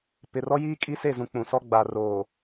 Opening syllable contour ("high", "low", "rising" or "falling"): low